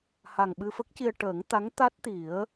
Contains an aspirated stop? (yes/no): no